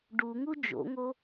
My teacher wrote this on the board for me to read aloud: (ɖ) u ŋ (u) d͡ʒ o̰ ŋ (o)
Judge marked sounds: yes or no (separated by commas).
yes, yes, yes